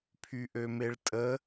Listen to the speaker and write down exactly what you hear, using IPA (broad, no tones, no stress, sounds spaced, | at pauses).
pʰ y ʔ ø m e ɭ tʼ ə